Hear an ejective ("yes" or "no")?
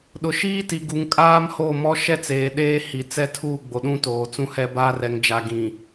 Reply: yes